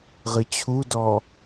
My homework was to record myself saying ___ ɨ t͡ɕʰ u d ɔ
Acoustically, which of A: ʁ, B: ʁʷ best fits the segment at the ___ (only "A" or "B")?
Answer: A